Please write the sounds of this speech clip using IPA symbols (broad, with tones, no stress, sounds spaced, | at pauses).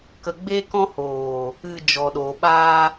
k ə˧ ɡ͡b e˦ k ɔ̃˦ h oː˨ | ɨ˧ d͡ʒ ɔ˨ ɗ oː˨ ɓ aː˧